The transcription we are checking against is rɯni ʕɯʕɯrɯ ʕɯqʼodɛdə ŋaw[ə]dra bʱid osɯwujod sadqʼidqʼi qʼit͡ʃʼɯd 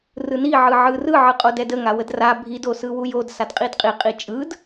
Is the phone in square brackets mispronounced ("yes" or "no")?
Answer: no